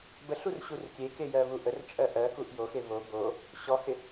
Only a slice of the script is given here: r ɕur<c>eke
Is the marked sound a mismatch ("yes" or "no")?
yes